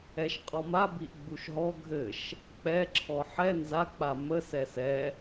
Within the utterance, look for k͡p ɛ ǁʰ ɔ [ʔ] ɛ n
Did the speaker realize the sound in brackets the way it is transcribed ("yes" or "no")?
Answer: no